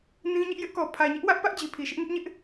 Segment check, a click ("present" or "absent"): absent